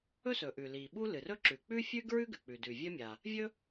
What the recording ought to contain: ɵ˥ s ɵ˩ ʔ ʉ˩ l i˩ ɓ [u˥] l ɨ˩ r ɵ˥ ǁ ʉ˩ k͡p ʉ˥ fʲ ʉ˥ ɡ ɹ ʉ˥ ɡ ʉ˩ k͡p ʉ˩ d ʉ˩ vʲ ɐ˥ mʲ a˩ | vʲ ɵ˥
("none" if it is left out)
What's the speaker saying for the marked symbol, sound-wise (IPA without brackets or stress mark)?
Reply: u˥